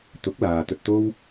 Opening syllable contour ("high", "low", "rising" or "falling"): rising